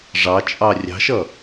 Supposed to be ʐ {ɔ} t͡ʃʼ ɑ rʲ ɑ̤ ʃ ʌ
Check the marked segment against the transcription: incorrect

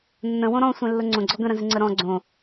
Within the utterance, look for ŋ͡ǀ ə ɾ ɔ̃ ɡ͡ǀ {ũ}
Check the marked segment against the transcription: incorrect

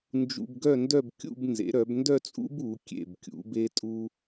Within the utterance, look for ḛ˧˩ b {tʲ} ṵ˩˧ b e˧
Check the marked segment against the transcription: incorrect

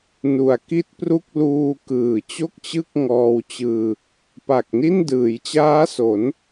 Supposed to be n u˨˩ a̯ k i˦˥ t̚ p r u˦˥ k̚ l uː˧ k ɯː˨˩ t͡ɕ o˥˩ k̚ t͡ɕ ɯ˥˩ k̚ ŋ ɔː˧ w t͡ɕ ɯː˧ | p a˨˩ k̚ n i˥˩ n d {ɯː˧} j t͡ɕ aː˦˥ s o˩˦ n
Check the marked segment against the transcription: incorrect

